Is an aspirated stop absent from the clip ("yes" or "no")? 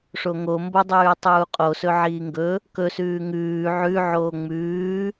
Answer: yes